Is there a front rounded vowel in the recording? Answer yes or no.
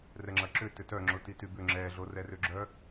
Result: yes